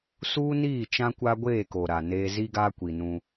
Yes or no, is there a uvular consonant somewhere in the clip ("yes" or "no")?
no